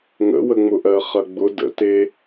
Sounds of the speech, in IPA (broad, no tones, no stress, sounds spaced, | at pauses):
ŋ ə̰ w ə ŋ͡m ʊ ʔ ɜ χ ɐ ɡ͡b ʊ d ə̰ t e